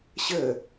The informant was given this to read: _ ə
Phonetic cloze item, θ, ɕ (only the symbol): ɕ